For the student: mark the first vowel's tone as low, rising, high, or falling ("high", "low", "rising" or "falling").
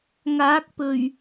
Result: rising